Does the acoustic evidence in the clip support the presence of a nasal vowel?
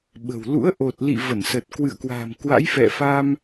no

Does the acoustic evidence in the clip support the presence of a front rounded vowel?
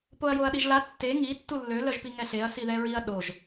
yes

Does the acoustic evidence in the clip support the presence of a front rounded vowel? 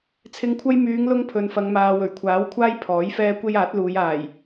yes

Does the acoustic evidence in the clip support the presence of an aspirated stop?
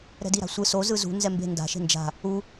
no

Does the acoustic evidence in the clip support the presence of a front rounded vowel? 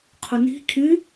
no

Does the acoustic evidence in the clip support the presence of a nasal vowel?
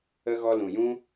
yes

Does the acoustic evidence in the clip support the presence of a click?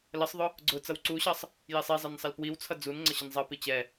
yes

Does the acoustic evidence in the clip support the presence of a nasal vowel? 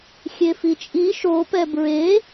no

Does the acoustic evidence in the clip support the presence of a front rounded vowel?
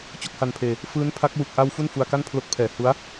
no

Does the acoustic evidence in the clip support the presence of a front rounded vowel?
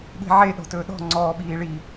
no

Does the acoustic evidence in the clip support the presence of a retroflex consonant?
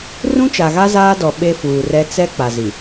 no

